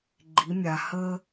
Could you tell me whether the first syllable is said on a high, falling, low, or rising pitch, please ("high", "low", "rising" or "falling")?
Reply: rising